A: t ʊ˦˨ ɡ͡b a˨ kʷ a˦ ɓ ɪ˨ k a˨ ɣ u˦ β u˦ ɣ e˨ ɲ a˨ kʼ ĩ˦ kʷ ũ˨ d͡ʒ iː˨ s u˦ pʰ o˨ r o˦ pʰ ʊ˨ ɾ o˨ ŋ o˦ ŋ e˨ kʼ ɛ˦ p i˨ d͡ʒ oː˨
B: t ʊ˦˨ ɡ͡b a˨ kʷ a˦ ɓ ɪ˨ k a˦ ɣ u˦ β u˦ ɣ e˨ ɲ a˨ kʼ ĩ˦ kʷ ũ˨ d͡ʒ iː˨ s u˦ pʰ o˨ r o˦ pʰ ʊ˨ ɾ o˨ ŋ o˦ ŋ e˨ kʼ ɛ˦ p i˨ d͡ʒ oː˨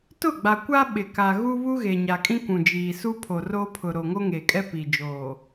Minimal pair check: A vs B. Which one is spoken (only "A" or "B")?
A